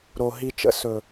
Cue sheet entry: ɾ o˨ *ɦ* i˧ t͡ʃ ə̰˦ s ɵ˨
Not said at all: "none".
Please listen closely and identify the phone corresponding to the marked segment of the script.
ɦ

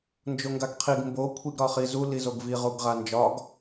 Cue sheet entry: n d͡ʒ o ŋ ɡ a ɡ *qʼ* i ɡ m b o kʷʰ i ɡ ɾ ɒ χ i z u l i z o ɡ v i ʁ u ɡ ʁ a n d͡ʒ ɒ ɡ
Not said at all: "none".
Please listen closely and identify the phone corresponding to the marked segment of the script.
qʰ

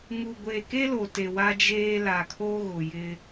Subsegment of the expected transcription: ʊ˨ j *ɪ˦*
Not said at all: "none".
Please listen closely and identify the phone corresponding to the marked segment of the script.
ɪ˦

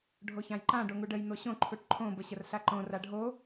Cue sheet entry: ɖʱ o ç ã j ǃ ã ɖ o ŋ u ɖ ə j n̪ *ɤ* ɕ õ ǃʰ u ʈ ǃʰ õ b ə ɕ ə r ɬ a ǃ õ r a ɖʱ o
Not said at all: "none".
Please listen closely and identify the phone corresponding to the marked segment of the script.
o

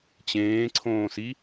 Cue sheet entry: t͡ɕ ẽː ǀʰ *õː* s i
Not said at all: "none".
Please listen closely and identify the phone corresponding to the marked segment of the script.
õː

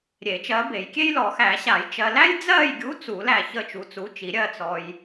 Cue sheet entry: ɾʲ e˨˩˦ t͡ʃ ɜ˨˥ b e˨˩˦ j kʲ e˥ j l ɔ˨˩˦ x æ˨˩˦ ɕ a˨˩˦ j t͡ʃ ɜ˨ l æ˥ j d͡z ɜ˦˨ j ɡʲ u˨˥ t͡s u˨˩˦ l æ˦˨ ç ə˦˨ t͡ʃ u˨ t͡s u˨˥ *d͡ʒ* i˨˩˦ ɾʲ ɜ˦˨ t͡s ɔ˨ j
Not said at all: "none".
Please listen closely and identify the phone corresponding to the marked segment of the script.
t͡ʃ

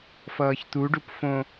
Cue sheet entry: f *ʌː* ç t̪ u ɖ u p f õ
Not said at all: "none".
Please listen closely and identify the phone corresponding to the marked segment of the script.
ʌː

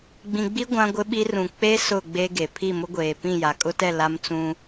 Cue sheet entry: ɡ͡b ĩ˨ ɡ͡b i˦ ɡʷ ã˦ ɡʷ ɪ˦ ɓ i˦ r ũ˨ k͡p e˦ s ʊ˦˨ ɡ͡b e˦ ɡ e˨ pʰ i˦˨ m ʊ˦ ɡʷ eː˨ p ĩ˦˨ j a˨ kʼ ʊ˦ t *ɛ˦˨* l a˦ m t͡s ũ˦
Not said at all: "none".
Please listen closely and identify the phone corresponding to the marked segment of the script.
ɛ˦˨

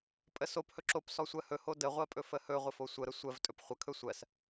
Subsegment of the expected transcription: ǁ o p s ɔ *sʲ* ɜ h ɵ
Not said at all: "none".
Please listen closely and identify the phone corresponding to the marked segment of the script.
sʷ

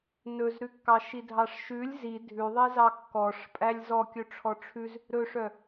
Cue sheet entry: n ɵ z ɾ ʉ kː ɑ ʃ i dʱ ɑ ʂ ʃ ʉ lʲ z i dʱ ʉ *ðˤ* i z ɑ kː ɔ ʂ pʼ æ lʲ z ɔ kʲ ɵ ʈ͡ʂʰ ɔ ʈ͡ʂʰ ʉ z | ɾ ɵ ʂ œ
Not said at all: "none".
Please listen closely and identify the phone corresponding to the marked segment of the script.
ðˤ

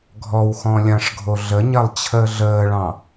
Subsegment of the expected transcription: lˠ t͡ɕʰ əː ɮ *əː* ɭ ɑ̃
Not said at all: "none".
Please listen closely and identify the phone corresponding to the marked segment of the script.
əː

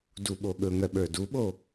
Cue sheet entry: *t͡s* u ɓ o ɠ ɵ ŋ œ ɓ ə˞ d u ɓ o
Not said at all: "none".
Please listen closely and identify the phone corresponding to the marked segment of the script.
d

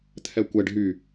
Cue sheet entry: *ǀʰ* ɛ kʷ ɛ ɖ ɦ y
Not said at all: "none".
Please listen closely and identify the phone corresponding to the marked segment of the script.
t̪ʰ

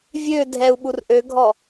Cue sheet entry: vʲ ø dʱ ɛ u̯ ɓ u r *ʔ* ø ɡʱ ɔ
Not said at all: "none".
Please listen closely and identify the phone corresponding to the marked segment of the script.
ʔ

